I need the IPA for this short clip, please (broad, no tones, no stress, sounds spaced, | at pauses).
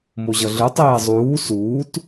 m o ʑ ʌ ɮ ɯ tˤ eː zˤ uː s uː t